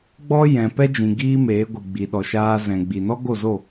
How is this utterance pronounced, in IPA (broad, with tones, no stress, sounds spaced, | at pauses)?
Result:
ɡ͡b ɔ˦ j ɛ̃˨ p ɛ˦ d͡ʒ ĩ˨ ɡ iː˦ m eː˨˦ ɡʷ ɨ˨ ɡ͡b i˨ ɗ ɔ˨ ʃ aː˧ z ɛ̃˨ ɡ͡b i˨ n ɔ˦ ɡ o˦˨ z o˦˨